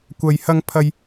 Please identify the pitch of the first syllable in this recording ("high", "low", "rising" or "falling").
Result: low